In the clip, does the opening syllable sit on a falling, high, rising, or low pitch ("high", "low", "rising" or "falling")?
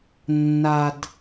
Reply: low